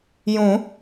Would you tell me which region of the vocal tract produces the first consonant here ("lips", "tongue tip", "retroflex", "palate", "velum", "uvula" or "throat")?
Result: palate